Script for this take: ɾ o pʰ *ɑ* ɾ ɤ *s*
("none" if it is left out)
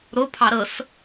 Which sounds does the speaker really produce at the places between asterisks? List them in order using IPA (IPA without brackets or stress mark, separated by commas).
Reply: ɑ, s